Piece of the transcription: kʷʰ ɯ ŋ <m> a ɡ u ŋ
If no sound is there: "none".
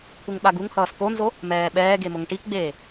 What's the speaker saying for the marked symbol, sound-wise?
ɓ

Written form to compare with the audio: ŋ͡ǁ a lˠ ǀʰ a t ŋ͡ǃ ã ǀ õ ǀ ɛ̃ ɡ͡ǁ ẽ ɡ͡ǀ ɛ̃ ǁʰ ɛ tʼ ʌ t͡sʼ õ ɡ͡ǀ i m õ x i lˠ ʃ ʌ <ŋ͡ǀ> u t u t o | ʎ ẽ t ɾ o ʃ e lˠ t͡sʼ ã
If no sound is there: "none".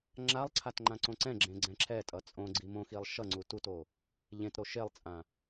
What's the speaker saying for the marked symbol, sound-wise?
ŋ͡ǀ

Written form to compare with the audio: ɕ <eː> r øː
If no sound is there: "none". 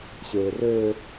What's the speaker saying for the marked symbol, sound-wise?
eː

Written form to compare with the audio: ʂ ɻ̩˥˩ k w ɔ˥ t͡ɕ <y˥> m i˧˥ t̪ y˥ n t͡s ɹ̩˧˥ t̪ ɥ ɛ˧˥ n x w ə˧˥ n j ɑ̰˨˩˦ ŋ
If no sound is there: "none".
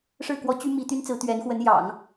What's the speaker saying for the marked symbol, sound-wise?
y˥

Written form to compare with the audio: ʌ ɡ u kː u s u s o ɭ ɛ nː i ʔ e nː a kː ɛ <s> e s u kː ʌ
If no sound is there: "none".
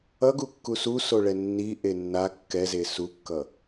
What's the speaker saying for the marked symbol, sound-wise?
z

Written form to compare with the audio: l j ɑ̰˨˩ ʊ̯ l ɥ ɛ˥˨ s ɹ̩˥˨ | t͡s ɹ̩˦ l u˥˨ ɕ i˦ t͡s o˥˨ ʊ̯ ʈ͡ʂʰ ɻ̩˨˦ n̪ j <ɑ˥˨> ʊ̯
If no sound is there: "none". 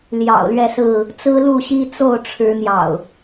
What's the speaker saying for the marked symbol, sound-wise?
ɑ̰˨˩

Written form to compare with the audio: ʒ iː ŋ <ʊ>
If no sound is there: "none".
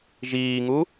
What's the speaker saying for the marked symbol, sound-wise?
u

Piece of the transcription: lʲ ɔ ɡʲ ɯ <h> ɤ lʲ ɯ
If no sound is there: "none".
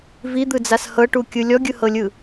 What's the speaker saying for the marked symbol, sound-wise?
h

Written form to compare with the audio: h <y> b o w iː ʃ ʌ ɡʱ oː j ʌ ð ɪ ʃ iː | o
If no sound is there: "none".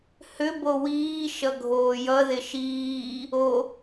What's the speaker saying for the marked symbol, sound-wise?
ʏ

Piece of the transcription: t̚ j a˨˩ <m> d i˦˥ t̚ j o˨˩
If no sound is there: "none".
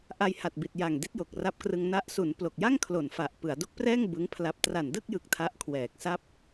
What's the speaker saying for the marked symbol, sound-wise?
ŋ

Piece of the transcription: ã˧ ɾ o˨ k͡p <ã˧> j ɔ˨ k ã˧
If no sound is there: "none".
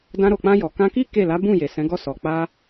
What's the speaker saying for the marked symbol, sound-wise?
ã˧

